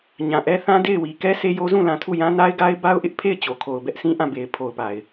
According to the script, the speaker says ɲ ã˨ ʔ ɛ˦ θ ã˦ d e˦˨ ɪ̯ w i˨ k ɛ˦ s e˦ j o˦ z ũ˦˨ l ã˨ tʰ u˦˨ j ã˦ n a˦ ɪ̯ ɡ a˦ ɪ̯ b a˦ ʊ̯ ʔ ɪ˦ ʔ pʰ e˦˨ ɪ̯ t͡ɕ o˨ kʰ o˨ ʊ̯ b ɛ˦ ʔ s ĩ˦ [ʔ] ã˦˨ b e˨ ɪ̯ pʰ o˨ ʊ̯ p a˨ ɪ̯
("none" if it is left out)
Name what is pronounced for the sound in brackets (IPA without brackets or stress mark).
ʔ